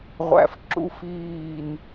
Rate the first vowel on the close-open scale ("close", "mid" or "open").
open